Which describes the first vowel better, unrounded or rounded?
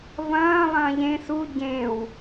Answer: unrounded